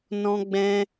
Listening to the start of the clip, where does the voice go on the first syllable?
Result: high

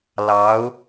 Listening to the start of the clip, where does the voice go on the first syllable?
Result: rising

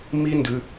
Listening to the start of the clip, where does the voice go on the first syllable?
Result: high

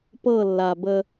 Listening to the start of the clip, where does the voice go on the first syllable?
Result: falling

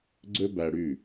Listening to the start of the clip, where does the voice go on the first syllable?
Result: high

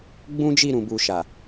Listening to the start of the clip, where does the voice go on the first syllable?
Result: high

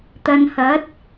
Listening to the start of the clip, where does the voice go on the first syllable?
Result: low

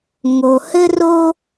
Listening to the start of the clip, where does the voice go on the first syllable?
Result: low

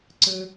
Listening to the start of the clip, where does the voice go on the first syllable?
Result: low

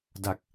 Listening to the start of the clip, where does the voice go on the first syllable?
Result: low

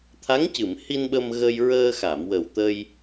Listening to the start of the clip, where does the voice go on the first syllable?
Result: rising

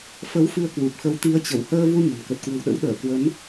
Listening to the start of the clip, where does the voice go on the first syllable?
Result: rising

